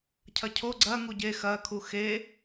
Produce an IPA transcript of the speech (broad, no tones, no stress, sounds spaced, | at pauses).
cʰ ɐ cʰ o ɡ͡ǀ ɐ ŋ u ɟ e x ɐ kʰ u x e